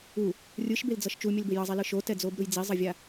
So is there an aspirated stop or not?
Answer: no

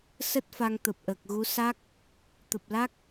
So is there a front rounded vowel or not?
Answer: no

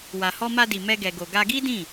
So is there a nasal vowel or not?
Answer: yes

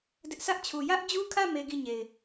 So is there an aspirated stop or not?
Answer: yes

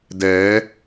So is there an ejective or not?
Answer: no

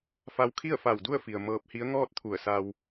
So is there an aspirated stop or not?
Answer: yes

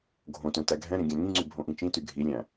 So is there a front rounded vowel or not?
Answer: yes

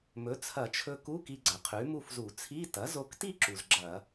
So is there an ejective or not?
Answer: no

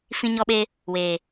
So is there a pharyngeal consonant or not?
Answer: no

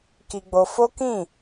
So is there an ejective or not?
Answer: no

